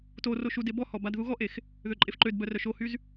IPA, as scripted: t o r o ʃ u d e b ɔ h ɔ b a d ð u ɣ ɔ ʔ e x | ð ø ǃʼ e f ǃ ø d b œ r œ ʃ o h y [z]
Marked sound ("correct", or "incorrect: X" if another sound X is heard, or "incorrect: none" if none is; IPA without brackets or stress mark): correct